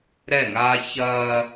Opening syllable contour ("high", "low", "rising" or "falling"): falling